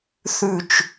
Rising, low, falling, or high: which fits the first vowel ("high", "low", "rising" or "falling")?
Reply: falling